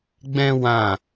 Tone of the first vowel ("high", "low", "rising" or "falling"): high